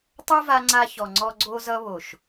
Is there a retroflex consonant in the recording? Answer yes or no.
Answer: no